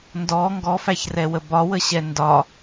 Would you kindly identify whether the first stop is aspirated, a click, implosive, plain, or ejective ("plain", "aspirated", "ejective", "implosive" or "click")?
plain